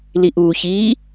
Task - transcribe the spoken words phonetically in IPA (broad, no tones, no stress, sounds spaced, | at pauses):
l i ʔ uː ç iː